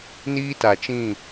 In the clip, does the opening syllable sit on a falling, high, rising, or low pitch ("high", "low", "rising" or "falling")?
high